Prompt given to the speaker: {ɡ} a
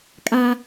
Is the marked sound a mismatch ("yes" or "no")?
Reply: yes